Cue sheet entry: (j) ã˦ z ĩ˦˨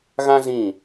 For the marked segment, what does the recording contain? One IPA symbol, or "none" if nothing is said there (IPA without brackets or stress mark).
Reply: ɣ